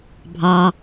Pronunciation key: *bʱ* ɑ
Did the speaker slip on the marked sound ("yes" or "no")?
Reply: no